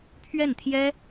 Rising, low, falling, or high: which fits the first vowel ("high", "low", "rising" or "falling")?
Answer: falling